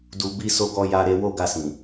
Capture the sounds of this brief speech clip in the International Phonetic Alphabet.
d u˨ b i˧ s o˧ ɡ ɔ˧ j a˧ ɾ e˧ w o˦ ɡ a˧ s ĩ˨

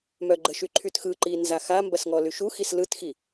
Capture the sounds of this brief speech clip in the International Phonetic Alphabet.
m œ ɡ͡ǃ ə ʃ y ǃʰ y t x ɯ ǃ i n z a x a m b ɐ s ŋ ɔ l y ʃ u x i s l ɯ t x i

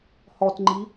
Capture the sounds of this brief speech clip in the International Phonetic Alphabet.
h ɔ t ŋ͡ǃ i

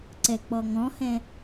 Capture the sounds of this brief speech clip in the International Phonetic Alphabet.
ǀ ɛ k͡p ɔ ŋ ɔ̃ h ɛ̃

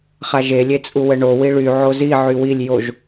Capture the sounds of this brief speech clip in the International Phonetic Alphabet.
χ a ʒ e lʲ e t͡sʼ u w ə ɳ o w i ɭ y ʕ o z i ʕ y w i lʲ j o ʒ

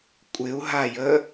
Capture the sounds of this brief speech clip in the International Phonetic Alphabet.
kʷʼ ɪ u̯ ɦ a j ə

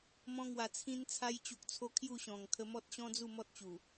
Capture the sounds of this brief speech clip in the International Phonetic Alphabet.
m ɔ̃˧ ŋ w a˨˩ t͡sʰ ĩ˧ n t͡sʰ a˧ j t͡ɕ u˨ k̚ t͡sʰ o˧ kʰ j u˥˧ ɕ ɔ̃˨˩ ŋ kʰ ə˧ m ɔ˦ t̚ ɕ ɔ̃˦ d͡z u˥˧ m ɔ˦ t̚ t͡ɕ u˨˩

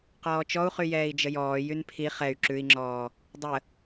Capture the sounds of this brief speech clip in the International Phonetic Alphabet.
q ɔː t͡ʃ ɔ u̯ χ y j ɛː i̯ d͡ʒ ə j ɔː j y n pʰ i χ ɛ y̯ ǁ ʉ i̯ ŋ͡ǁ ɔː | dˤ ə

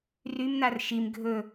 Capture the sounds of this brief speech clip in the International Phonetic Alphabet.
r y m n a r ʃ i m ɡʱ ɵ

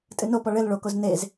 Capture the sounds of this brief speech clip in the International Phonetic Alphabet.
tʼ ɨ n o p ɔ ɭ ɘ l ɭ o k o z n e z

